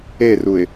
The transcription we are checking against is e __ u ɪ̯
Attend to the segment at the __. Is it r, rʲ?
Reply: r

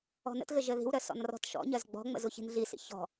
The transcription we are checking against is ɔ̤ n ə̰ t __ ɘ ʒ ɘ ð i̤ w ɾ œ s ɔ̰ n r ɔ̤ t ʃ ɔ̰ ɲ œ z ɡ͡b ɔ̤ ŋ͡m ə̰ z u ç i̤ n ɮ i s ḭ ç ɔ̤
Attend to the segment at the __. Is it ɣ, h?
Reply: ɣ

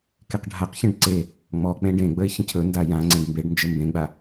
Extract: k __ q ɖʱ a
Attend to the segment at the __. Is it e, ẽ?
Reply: e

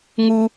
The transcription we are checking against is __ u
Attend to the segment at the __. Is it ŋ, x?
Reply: ŋ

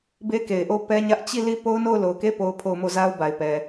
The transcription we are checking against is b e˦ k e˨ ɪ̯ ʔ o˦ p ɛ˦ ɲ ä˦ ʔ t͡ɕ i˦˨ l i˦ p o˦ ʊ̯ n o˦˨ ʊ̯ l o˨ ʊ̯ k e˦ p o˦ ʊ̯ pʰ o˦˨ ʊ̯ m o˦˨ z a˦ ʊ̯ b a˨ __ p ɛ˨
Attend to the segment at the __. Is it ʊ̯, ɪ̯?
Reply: ɪ̯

